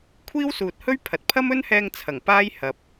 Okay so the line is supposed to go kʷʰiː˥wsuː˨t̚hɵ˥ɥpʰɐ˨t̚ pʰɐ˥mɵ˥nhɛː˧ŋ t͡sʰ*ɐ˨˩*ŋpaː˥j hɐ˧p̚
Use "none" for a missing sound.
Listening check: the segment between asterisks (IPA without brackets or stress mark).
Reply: ɐ˨˩